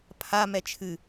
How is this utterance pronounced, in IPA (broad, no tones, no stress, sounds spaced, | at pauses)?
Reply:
pʰ a m ɛ t͡ʃʰ ɨ